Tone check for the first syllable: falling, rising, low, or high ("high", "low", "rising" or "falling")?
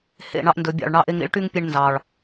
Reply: falling